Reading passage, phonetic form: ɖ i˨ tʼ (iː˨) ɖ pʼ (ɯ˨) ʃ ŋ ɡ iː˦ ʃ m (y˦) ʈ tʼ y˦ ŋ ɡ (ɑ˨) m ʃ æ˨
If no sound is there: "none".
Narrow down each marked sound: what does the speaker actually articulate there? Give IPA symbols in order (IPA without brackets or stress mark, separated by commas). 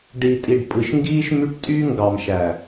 i˨, ɯ˨, y˦, ɑ˨